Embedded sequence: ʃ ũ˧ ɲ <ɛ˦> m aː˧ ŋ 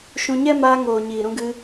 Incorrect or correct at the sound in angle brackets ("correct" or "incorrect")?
correct